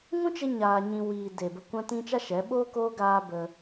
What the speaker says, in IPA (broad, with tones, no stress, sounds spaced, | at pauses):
ŋ ũ˦ t͡ʃ e˧ ɲ aː˧ ɲ ĩ˧ w iː˨ d e˨ b ə˧ kʷ ã˦ t ĩ˦ t͡ʃ a˦ ʃ ɛ˨˦ ɓ oː˦ k oː˦ ɡ aː˧ b ə˧